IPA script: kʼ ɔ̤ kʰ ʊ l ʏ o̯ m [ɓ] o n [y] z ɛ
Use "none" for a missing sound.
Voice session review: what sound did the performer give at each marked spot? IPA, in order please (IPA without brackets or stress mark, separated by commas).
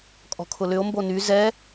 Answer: b, y